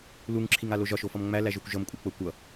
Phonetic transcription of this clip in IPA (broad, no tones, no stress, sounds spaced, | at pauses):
l u ŋ ǁʰ i ŋ a l o ʒ ɒ ʃ o f ʌ m ŋ͡m æ l æ ʒ o kʷ ʒ ʌ m kʷʼ ɤ k͡p ɤ kʷ ʌ